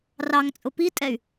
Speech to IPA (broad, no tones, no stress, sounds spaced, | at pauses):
r ɑ ŋ t͡sʼ ʊ p i tʼ ɛ y̯